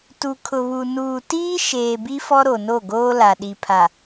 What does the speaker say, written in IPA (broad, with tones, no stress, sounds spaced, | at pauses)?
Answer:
t u˨ kʰ ʊ˨ β u˨ n uː˨ t iː˦ ʃ eː˨ b i˦ f ɔ˦ ɾ o˨ n o˦˨ ɡ oː˦ l a˨ ɗ i˨ pʰ a˨